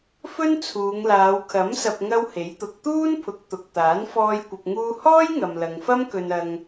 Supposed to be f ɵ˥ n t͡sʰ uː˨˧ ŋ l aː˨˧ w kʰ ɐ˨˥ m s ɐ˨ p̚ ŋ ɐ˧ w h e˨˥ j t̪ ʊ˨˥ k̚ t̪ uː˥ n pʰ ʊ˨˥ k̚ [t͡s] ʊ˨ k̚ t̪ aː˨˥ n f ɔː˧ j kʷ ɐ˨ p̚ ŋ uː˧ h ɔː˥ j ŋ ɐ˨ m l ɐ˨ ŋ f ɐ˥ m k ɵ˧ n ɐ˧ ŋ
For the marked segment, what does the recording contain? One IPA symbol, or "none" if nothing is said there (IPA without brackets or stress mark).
t̪